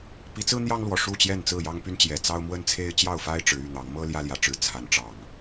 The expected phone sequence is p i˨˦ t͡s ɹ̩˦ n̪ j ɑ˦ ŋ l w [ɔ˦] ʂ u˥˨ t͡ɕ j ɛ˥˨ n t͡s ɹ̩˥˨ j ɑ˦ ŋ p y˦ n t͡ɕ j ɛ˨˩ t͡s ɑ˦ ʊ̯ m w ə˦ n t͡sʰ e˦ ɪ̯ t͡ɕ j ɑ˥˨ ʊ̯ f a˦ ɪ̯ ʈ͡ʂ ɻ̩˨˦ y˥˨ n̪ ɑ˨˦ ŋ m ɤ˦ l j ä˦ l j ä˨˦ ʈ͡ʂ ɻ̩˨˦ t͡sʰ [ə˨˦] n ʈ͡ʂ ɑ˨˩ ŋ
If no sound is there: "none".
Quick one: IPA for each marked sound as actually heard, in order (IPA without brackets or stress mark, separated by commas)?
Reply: ɔ˨˩, a˨˦